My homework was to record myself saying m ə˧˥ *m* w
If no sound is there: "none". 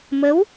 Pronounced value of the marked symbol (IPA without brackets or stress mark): none